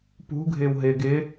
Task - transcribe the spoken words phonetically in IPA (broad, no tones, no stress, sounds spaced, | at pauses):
p ṳ ɡʱ ɪː w ɦ ɪː ɡ ɪː